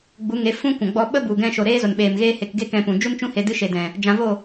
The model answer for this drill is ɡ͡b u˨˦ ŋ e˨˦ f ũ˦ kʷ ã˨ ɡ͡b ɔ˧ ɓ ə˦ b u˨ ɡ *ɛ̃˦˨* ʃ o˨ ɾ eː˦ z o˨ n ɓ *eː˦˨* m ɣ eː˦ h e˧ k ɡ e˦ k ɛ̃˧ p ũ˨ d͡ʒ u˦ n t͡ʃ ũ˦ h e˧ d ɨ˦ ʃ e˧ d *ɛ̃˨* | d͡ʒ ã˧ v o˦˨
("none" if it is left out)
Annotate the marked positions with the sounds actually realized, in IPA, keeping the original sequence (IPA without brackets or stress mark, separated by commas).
ɛ̃˧, eː˨, ɛ̃˨